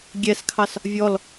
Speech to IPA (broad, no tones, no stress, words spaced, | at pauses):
ɡʲɛskʰɑs | vʲɔl